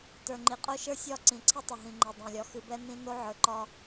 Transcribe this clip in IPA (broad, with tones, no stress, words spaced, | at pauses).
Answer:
tə˞˨ŋ͡ǃi˨qʼo˦ ʃə˞˦sʲɒ˦˨ ǀĩ˨ǀʰi˦tˤə˨ ɦĩ˨ŋ͡ǃe˨ dˤẽ˨lʲɒ˨ xɨ˨bɛ˦nĩ˦ no˦ʕə˞˨ǃɒ˦